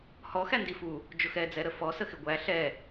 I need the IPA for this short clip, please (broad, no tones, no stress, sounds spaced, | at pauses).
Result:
h ɔ x æ n d i f u | d͡ʒ ʊ x ɛ d͡z ɛ ɾ ə f ɔ s ə x ɪ ɡʷ æ ɬ ɛ